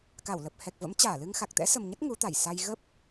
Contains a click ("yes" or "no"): no